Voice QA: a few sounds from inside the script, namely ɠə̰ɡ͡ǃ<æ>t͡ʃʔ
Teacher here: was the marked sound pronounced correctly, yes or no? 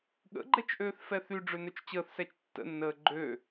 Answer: no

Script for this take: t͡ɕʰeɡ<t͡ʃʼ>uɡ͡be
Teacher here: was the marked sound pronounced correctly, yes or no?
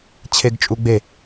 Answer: yes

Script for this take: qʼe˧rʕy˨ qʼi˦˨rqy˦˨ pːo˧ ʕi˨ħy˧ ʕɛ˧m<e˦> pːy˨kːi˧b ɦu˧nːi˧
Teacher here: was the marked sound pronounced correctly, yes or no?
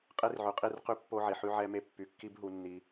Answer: no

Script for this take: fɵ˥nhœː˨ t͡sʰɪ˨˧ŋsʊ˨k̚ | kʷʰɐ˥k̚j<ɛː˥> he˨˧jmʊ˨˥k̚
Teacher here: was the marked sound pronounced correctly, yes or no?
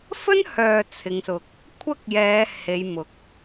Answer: no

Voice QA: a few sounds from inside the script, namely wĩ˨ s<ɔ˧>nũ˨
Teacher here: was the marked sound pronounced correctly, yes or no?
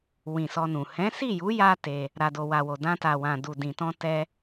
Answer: yes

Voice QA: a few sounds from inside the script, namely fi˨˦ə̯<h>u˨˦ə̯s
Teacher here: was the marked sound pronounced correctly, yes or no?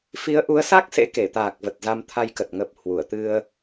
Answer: no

